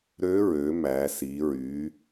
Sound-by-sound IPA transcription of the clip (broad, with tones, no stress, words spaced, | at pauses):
ɾø˧˥ ɹø˩˧ mæ˩˧si˩˧ɹy˩˧